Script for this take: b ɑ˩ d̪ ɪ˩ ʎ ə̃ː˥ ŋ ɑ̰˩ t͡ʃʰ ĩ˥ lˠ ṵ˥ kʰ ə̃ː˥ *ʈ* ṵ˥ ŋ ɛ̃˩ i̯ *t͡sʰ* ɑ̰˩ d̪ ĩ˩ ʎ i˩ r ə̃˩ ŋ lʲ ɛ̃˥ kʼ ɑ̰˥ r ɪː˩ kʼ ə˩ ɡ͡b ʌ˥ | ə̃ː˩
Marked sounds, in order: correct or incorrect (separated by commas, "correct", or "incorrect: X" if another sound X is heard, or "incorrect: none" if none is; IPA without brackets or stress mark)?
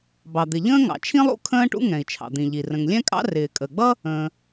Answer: correct, incorrect: t͡ʃʰ